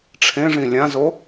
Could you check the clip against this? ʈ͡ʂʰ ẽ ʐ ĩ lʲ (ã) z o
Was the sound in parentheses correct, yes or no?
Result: yes